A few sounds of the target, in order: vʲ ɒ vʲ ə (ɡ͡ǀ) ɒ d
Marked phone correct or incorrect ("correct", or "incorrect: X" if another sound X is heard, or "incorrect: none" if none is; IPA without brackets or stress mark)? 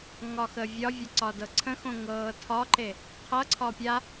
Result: incorrect: ǀ